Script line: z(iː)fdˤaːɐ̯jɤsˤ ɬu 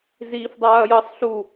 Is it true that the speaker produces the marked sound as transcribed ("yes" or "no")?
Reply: yes